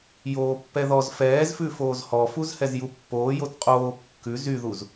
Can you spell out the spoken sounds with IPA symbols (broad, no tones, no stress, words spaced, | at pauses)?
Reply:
joːpːɛðɔz fɛːzfʉ foːzhɔfuz hɛzjupːoː jotqʼoː kːʉ zyðuz